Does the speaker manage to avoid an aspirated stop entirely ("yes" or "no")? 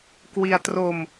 yes